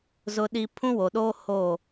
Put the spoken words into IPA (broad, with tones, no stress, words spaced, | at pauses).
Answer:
zʊ˦ɗi˦ pʰũ˦wo˨ɗoː˦ ho˦˨